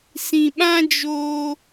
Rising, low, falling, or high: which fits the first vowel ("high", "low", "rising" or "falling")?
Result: low